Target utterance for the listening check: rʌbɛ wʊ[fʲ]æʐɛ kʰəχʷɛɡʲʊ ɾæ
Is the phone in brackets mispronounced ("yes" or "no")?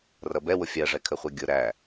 no